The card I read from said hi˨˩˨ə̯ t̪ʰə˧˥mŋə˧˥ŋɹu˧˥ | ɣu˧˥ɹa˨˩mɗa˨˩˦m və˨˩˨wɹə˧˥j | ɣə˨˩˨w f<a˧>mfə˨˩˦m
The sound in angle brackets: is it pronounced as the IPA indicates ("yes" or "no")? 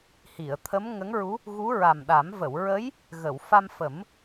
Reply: yes